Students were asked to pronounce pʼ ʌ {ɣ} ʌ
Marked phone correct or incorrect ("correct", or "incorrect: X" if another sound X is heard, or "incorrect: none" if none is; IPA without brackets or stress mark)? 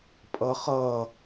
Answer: incorrect: χ